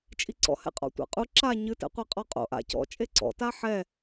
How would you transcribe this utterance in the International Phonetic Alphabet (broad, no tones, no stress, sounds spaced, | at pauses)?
t͡ʃʼ i ǀ ɔ̰ h ɛ̰ qʼ ɔ̰ tʷ a̰ qʼ u ǁ a ɲ ɨ t ɛ̰ qʷ e qʼ ɔ qʼ o̰ ʔ a̰ c ɔ̰ t͡ʃʼ e ǀ ɔ̰ t a ħ ɛ